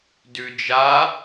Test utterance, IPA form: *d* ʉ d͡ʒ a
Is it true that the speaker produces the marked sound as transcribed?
yes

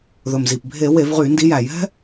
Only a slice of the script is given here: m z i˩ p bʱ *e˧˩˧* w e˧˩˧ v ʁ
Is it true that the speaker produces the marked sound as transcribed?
yes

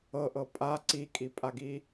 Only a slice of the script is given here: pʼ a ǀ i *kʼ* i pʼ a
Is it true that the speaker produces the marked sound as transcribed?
yes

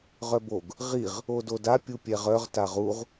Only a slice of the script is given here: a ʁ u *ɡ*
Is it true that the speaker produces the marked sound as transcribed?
no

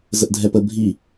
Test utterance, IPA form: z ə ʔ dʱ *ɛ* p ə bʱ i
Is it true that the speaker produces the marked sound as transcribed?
yes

